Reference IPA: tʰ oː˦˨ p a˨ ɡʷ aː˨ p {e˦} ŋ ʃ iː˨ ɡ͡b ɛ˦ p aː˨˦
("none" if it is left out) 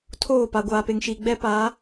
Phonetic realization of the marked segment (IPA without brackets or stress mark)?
e˨